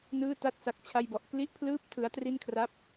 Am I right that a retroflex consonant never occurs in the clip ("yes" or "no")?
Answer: yes